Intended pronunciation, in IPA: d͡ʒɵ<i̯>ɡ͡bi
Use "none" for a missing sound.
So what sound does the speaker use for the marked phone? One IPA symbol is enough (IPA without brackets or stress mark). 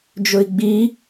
i̯